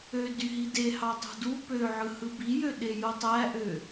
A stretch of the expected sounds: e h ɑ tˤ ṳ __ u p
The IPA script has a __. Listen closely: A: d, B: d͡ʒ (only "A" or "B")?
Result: A